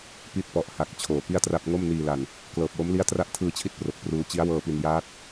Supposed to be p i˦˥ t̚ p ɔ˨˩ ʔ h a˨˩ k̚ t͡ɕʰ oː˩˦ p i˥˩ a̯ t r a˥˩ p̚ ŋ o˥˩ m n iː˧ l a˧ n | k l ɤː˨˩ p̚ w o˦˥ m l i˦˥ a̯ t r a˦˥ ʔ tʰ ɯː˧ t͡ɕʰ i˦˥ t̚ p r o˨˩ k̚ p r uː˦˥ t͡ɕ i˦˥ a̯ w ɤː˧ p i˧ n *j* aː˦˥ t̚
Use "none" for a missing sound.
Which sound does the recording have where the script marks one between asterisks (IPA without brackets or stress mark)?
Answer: j